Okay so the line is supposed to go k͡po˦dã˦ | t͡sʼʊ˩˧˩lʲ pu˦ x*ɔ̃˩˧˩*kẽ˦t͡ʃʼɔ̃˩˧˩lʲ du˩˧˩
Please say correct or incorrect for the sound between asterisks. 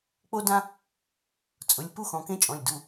correct